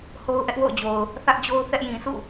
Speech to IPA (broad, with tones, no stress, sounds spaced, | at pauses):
h o˦ ʊ̯ ʔ ɛ˦ ʔ w o̰˦˨ ʊ̯ d͡ʑ o˨ ʊ̯ | θ ä˦ ʔ d͡ʑ o˦ ʊ̯ θ ɛ˦ ʔ j ĩ˨ sʰ ṵ˦˨